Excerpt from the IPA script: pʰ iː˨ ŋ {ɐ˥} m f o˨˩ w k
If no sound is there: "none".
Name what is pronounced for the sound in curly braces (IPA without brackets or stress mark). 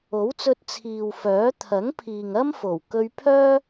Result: ɐ˥